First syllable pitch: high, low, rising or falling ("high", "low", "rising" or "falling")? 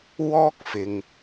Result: high